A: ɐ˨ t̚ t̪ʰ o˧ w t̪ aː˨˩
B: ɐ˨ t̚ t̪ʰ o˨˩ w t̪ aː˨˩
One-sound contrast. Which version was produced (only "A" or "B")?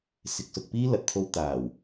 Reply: A